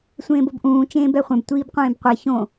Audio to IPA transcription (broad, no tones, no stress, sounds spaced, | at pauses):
sʷ ẽː b o b ʔ ũː t͡ʃ ẽː b ɛ χʷ ɛ̃ b tʷ iː b qʷ ẽː b qʷ e ç õ